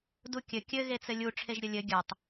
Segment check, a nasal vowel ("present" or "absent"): absent